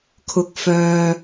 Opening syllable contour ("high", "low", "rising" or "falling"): low